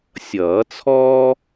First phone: sʲ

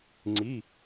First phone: ŋ͡ǀ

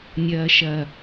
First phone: nʲ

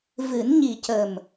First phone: v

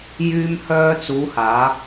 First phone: j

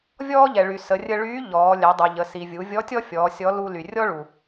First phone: vʲ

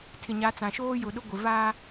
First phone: tʰ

